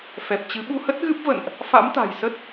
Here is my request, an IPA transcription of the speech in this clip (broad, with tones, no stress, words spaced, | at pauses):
fɛ˨˩p̚t͡ɕɨ˨˦ ɓu˧hə˦˥t̚ɣɨ˦˥p̚və̰˧˨nʔ | fa̰˧˥mt̪a̤˨˩jsə˦˥t̚